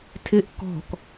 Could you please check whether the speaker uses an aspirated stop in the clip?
yes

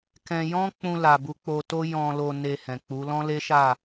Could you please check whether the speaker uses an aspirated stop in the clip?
no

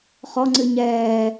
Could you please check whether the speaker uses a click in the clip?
yes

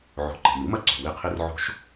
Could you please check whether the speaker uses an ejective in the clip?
no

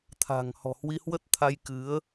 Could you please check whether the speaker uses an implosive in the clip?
no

